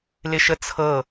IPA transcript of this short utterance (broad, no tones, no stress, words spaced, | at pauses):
lɪʃət͡sʰɤ